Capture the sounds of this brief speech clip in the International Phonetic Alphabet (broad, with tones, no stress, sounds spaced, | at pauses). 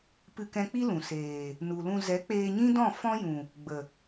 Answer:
p ɨ˧ k ɛ̃˧ k͡p i˦ l ũ˨ s eː˨ | n u˨ l ũ˧ z ɛ˨˦ k͡p eː˧ ɲ ĩ˦ d ɔ̃˦˨ f ɔ̃˦ j ũ˨ | ɡ͡b ə˨